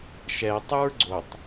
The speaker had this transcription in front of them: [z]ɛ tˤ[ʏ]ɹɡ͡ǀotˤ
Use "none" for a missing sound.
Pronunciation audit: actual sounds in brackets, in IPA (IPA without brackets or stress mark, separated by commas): ʃ, u